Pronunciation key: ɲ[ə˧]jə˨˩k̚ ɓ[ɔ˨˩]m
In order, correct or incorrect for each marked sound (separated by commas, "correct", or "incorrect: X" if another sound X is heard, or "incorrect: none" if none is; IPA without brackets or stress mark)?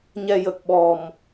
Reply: incorrect: ɛ˧, correct